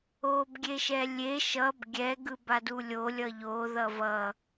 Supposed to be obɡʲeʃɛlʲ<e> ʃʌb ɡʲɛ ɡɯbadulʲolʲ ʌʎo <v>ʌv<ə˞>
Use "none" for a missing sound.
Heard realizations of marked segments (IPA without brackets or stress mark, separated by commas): e, ð, ʌ